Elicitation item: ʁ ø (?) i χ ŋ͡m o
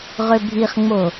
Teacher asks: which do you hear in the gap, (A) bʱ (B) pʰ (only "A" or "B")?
A